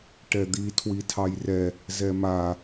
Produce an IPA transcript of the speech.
ʈɛd̪i tʰwitʰɑjrɛ | zɛma

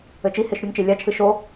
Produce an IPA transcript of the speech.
ɘt͡ʃiheʃ ɾʲuŋt͡ʃe lʲat͡ʃʰɨ ʃo

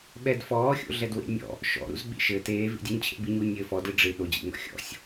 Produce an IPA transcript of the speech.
ɓɛdfɔːxʲo̰ɮɛd wḛnʲɔ̰ | ʃɔ̰ɾṵz ɓḭʃɘ teːvḭdʲuɲ t͡ɕʰḛbiɲu nʲɘːfɔ dɨɖ͡ʐɨ ɗod͡ʑḭŋɔ̰ xʲɔ̰sʲ

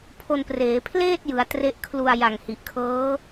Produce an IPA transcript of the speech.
pʰo˧npreː˩˦ pʰleː˥˩t̚jɯ˩˦a̯ tre˦˥ʔkʰlu˧a̯ ja˨˩ŋhi˨˩ʔkʰɤː˦˥

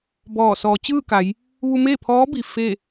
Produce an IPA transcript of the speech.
bɔː˧˩ sɔː˩˧t͡ɕɯː˥˨ka˩˧j | ʋu˧meː˥˨pʰɔː˧˥bi˩ fe˥˨

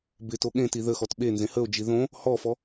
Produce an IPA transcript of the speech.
bɪ toɠẽti ðəxɔt ɓenzẽ həo̯d͡ʒi ðõ | hɔfɔ

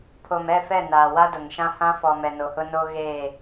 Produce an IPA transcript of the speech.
pʰo˨mɛ˦˨ fɛ˦˨naː˨ wa˦dʊ˨ŋʃã˦ hã˦fɔ˨ mɛ˨no˨hʊ˦no˦ ɣeː˦˨

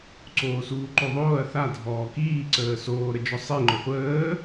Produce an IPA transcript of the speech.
ǀoːsuːǃoðˤoːɐ̯ θa dʱɔːkiː ǀəːsoː ɾəd͡ʒɔsˤi ŋ͡ǃɔχʷəː

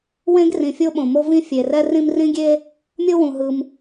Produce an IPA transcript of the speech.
wẽ˥ɡrĩ˩ fʲo˥ɓõ˩ mo˥vĩ˥ fʲe˩rɛ˥ rĩ˥m rĩ˥ɡʲe˥ | mʲo˥wũ˩ɦɯ˩m

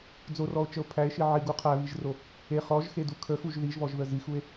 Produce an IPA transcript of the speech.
d͡zorɔo̯t͡ʃəo̯ pʰæe̯ʃi ʕiɡu qʰæβiʒro | e χɔʒxedu kʰəxuʒ ðiʒβɔʒðə zixue̯

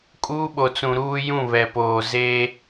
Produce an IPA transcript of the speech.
kʼuː˦ɓo˨t͡sũ˨ ɾuː˦ jũ˦˨βɛ˨poː˨ zeː˦

